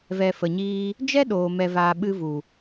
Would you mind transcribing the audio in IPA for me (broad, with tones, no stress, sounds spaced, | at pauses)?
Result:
v ɛ˧ f ə˨ ɲ iː˦ | d͡ʒ ɛ˦ ɗ oː˨ m ɛ˧ v aː˧ ɓ ɨ˧ v u˨